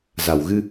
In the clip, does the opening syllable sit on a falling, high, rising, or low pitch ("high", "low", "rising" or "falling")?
low